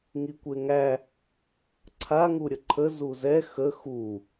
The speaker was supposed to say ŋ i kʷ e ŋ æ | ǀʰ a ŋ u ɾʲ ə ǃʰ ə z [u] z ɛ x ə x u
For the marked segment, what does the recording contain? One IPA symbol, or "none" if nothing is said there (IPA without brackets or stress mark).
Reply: u